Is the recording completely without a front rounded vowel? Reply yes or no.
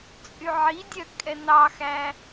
no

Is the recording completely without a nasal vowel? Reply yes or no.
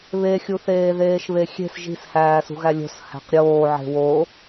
yes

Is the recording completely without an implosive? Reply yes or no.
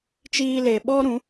no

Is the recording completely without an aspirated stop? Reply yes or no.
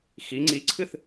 no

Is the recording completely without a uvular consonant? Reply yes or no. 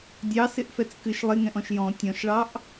yes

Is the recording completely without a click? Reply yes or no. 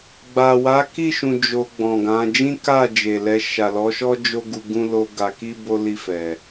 yes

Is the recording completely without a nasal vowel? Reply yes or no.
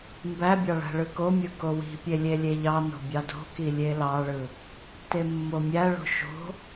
yes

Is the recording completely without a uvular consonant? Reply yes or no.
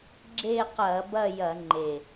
no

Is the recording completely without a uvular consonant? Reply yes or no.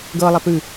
yes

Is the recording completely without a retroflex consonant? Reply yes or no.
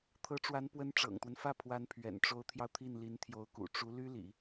no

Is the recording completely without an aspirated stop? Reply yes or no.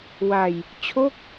no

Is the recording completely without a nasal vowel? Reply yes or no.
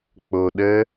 yes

